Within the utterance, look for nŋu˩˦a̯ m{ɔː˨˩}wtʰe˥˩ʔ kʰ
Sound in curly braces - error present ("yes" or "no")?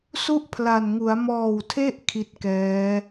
no